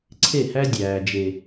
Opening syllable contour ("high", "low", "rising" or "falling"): falling